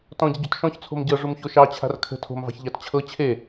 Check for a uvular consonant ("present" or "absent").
absent